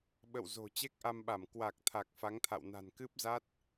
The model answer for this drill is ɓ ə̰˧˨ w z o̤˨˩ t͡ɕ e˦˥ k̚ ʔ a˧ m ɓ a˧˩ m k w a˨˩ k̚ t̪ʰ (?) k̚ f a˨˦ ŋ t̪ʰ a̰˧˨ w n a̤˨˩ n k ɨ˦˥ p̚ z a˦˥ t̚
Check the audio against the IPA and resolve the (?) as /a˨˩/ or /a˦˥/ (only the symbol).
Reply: a˨˩